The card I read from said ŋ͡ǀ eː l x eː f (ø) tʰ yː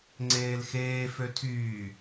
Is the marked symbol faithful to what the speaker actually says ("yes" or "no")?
yes